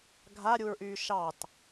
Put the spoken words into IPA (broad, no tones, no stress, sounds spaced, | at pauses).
ɡʱ a ɾʲ u ɹ ʔ yː ʃ ɑ t